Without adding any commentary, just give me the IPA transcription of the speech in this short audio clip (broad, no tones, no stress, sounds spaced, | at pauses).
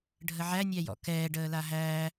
ɖʱ ə ʕ æ nʲ æ j ɔ̰ k ɛː ɖ əː l a ɦ æː